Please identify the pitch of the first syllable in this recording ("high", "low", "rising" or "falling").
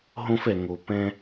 high